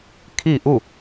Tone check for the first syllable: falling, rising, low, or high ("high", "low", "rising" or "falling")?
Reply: falling